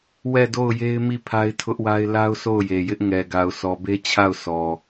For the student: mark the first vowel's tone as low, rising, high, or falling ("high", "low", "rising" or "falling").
falling